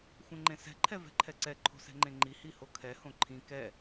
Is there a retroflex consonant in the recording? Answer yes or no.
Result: no